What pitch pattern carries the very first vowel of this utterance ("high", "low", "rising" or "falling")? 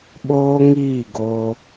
high